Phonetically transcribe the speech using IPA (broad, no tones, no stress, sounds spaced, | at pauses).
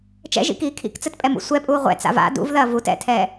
t͡ʃ ɛ̰ ʒ ḭ k iː kʰ ḭ k t͡s ɘ t pʼ ɛ m ṵ sʷ ɛ pʼ uː ʁʷ ɛ̰ t͡s a̰ v a̰ d ṵ v ð ɐː v u t ɛ̰ tʰ ɛː